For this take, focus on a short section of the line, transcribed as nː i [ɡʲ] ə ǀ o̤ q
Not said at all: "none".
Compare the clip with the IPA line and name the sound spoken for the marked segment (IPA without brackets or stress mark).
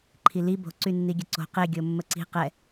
ɡʲ